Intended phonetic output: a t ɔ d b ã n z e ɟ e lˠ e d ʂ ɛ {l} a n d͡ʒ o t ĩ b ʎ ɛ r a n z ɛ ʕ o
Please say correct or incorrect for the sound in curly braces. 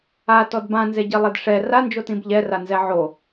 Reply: incorrect